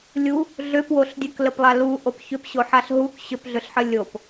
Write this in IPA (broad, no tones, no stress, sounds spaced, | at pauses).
lʲ u | ɮ ʏ p w o ɬ dʲ ə k l ə p lˠ a l u ʔ o p ç ʏ p ɕ o ħ a ɬ ɦ u k ɕ ʏ p ɮ ʏ ɬ ħ ə lʲ o p